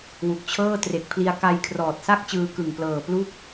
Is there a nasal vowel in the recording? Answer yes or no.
no